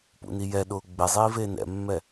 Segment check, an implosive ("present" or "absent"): present